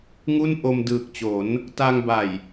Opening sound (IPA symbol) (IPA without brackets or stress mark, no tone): ŋ